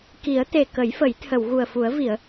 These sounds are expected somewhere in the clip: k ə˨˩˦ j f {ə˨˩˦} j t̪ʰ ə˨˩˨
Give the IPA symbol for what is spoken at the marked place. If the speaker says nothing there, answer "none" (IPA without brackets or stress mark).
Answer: ə˨˩˦